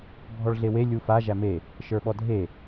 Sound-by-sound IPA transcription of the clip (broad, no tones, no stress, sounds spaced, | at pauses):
bʱ ɔ ɭ ɮ e w e lʲ u f a ʒ æ m e | ʃ ə˞ ɓ ɔ dʱ e